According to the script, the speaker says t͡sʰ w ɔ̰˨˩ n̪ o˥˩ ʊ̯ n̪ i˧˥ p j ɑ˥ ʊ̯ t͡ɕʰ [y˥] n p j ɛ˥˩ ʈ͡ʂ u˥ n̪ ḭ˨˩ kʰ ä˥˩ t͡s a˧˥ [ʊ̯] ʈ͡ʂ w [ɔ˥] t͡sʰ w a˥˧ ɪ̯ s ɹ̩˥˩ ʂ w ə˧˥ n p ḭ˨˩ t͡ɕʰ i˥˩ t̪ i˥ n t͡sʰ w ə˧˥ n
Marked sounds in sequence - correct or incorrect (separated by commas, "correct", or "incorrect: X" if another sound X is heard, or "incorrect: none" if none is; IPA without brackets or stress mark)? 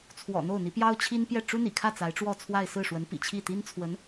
incorrect: i˥, incorrect: ɪ̯, incorrect: ɔ˥˧